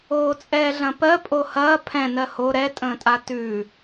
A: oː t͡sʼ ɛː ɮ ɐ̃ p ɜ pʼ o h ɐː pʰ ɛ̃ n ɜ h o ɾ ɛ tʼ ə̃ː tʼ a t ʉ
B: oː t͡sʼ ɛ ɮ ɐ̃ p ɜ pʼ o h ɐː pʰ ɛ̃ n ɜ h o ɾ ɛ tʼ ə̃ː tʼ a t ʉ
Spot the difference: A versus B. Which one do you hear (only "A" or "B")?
A